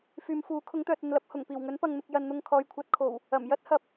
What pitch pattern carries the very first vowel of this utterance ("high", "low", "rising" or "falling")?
low